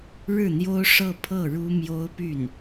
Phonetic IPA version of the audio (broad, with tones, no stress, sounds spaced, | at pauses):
ɻ ɻ̩˥˩ n̪ j o˥ ʊ̯ ʂ ɤ˥˧ pʰ ɤ˥˩ ɻ u˥ m j o˥ ʊ̯ p y˥˩ n